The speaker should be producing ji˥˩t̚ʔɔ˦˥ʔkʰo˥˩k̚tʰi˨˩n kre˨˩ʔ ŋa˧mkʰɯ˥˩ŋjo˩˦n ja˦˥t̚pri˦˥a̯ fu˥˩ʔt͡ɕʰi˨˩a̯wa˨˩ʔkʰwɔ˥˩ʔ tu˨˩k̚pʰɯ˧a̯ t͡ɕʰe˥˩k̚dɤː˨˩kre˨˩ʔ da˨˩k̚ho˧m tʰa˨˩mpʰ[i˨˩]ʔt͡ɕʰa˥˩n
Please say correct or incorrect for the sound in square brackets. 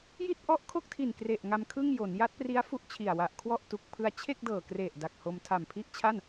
incorrect